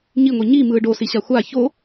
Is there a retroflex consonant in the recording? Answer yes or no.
yes